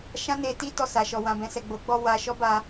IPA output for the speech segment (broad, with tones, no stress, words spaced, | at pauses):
ʃã˦ne˧ti˦ tɔ˦˨sa˨ʃɔ˨ wã˨bɛ̃˨sɛ˨ ɡ͡bo˨˦ɡ͡bɔ˧ wa˧ ʃɔ˦ba˧